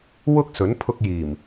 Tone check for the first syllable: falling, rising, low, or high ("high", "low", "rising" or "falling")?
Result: high